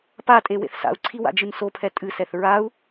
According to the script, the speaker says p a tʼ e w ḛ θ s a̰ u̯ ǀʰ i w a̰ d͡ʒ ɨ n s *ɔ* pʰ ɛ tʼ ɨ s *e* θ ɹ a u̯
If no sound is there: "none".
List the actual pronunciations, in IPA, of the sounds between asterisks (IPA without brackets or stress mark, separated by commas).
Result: o, ɛ